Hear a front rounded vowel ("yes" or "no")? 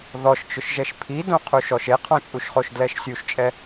no